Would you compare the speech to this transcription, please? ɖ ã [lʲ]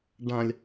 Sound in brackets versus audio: correct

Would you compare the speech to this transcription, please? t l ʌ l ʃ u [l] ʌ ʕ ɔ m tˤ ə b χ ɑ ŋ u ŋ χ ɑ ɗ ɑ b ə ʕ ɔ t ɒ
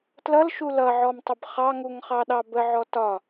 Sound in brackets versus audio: correct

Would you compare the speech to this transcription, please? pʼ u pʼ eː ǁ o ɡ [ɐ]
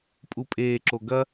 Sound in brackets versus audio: correct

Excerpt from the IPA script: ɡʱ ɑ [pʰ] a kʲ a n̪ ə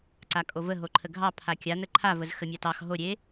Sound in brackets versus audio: correct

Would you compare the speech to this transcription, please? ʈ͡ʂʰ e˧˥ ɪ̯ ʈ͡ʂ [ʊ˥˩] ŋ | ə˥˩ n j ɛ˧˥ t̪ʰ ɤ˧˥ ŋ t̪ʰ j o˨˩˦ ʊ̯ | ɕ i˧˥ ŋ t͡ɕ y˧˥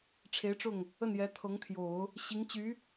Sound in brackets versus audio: correct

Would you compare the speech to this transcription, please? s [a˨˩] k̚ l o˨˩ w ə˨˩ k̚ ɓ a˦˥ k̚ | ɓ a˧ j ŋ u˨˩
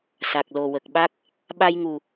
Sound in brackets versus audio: correct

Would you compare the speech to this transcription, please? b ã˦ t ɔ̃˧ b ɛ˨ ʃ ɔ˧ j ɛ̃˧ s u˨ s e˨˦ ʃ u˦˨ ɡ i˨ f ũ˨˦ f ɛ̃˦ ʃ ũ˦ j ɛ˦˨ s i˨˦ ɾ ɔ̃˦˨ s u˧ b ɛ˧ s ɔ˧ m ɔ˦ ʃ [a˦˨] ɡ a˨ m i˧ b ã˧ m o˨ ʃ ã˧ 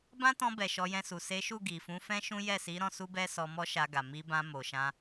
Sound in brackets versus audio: incorrect: a˧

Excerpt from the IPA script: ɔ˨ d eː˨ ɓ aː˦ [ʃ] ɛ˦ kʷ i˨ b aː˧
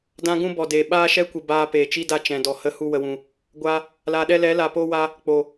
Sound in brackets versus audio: correct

